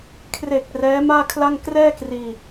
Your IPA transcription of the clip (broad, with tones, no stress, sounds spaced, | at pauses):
kʰ r e˨˩ k̚ r ɛː˦˥ m aː˥˩ kʰ l a˥˩ ŋ k r ɛː˥˩ k r iː˧